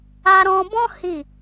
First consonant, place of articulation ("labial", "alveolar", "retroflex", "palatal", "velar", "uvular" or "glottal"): alveolar